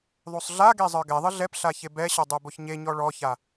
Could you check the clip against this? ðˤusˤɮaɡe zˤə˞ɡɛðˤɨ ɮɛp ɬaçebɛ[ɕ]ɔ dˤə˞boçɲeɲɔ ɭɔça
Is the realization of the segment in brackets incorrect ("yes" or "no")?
no